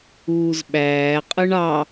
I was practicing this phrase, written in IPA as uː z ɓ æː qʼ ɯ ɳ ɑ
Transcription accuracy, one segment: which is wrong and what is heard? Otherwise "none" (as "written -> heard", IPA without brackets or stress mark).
none